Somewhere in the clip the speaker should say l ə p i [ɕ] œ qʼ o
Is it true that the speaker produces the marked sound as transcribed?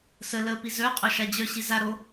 no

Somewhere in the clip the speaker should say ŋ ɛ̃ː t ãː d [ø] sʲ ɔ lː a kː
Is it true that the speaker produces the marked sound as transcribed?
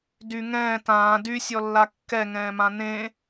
no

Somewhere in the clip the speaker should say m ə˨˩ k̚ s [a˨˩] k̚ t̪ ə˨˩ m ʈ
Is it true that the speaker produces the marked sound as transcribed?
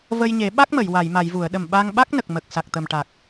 yes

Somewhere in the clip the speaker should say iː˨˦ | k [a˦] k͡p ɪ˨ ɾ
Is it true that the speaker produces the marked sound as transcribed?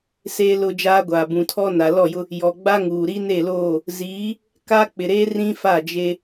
yes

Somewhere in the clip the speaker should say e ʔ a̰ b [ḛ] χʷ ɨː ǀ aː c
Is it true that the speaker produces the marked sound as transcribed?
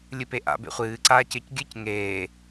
yes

